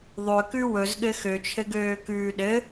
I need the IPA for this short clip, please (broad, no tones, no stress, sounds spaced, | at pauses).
ðˤ ø k ʉ w ɵ z ɠ ɘ x ø t͡ʃʰ ɘ ɡ øː k ʉː ɗ ɘ